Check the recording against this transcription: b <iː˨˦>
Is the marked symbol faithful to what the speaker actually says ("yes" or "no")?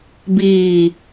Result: no